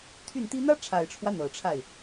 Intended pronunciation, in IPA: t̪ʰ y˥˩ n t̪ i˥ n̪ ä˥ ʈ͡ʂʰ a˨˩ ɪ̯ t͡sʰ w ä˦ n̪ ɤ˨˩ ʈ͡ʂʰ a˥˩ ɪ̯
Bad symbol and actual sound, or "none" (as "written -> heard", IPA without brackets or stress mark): t͡sʰ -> ʈ͡ʂʰ